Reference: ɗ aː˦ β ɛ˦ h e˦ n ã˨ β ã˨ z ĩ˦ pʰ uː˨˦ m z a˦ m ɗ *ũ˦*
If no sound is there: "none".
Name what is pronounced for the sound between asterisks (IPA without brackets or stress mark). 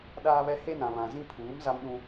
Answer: ũ˦